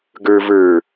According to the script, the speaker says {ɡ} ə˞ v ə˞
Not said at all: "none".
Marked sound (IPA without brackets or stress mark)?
ɡ